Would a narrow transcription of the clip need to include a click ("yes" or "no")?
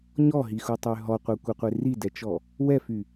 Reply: no